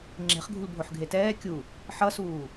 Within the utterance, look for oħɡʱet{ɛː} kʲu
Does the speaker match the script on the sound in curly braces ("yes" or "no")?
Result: yes